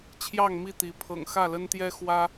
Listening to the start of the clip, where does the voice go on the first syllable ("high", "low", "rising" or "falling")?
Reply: falling